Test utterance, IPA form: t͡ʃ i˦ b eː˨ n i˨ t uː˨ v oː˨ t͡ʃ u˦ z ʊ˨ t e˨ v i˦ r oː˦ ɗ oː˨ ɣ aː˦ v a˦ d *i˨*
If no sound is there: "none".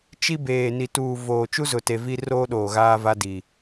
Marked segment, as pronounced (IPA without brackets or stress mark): i˨